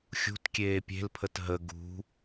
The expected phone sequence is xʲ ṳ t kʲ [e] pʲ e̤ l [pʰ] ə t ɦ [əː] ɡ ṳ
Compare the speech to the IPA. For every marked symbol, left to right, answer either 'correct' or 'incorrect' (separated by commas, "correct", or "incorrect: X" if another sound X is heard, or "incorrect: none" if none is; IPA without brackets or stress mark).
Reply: incorrect: eː, correct, incorrect: ə